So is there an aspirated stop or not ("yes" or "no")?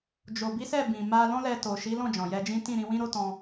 no